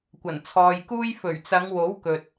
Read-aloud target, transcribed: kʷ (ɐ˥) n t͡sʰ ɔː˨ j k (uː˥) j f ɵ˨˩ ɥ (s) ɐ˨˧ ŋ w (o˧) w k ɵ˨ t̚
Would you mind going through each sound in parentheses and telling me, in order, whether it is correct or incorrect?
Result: incorrect, correct, incorrect, incorrect

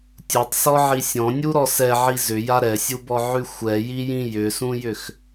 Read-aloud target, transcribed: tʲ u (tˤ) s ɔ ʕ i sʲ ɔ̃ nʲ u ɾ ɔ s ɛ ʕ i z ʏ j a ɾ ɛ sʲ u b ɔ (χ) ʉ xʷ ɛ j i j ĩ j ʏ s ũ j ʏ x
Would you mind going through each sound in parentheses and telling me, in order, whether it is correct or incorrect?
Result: correct, incorrect

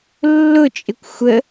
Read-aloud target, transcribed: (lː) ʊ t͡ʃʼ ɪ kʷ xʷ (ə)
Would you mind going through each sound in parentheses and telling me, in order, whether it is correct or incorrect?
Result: correct, correct

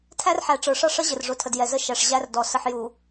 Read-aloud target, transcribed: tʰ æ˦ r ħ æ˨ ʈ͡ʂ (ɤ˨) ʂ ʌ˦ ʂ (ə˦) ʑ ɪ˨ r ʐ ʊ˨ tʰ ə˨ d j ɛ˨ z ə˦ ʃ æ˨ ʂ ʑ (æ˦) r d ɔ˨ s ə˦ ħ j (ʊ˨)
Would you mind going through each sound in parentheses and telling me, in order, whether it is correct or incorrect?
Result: incorrect, correct, correct, incorrect

